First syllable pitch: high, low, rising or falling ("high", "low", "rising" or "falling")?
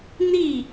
falling